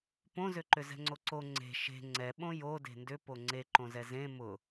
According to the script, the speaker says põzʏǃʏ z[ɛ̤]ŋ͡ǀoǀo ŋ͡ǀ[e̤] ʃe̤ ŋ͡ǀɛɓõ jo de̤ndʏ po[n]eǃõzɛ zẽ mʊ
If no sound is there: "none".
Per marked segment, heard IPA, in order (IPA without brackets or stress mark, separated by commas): ɛ̤, e̤, ŋ͡ǀ